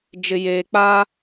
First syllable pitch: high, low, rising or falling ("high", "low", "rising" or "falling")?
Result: low